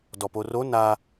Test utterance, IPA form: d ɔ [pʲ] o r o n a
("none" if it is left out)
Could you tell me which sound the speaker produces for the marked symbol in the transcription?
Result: p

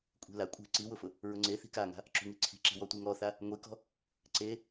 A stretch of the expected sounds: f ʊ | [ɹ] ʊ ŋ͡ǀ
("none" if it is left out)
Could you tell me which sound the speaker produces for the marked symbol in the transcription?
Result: ɹ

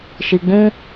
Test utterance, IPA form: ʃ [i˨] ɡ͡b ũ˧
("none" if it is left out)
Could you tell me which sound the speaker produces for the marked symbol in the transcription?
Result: i˨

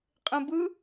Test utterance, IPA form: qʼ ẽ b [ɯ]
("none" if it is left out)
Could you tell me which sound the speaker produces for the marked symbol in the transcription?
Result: ɯ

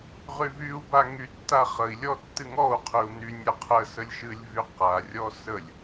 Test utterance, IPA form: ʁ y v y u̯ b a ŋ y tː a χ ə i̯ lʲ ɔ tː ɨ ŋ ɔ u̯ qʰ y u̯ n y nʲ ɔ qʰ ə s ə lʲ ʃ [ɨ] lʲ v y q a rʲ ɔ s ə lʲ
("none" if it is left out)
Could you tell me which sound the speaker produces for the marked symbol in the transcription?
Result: ɨ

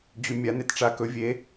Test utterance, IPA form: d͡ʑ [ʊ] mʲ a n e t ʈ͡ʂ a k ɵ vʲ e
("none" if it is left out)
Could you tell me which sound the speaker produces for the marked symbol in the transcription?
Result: ʉ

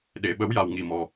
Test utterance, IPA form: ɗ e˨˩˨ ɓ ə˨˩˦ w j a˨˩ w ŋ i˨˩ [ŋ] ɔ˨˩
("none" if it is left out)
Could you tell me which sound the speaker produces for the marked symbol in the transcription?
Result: m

